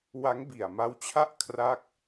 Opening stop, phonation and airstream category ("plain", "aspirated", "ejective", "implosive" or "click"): plain